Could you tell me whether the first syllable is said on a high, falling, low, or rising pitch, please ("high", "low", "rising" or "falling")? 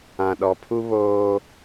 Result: low